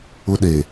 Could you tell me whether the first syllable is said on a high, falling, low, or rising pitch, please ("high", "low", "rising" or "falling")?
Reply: high